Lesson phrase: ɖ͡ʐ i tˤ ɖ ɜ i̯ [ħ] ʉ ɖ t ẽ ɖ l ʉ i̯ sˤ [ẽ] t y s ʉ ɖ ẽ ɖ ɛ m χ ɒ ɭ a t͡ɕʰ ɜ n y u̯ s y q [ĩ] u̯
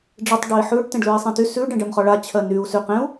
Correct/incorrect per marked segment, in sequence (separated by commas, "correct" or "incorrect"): correct, correct, incorrect